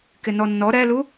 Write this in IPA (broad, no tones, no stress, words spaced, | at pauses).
kɪnɔnːɔ ɾɛlu